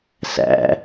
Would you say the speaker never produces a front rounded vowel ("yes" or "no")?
yes